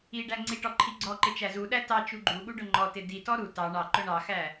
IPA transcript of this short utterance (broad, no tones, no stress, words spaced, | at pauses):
i ɖæŋ͡ǀiʈɔ ǃʰiɡ͡ǀɔǃɪ t͡ʃæzuɗæ tɑ t͡ʃuɡ͡ǃuɠu ɖʊŋ͡ǃɔtɪ ditɔ ɾu tɑ ɳɑǃʊ ɳɑxæ